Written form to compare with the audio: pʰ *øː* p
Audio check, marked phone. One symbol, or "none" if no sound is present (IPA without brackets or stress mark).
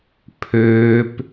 øː